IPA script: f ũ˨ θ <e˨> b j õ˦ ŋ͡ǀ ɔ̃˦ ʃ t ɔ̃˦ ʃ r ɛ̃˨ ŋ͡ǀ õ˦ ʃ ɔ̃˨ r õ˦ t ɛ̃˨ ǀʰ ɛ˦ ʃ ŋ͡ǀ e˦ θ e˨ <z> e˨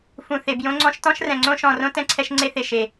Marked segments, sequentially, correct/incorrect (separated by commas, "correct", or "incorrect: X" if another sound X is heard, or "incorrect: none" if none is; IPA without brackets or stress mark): correct, incorrect: ʃ